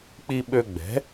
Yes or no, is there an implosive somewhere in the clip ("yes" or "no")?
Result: yes